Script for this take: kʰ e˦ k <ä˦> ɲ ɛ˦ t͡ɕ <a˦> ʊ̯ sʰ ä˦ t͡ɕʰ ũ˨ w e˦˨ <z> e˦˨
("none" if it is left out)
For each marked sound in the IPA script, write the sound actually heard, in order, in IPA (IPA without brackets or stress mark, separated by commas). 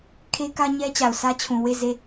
ä˦, a˨, z